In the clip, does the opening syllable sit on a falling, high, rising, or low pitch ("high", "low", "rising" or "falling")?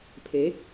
rising